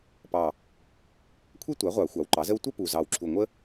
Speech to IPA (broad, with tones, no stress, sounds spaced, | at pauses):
p ɑ˨˩ | kʷʰ e˥ tʷ a˩˥ ʁʷ ɑ˨˩˦ xʷ ɑ˩˥ w ǃ ɑ˩˥ z ə˥ w tʷ a˥ p u˨˩ z ɑ˨˩ w ǁʰ u˨˩ ŋʷ ə˥